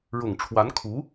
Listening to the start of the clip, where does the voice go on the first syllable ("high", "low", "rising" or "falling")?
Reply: low